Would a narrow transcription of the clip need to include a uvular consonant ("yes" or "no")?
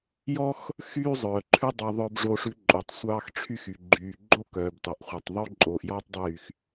yes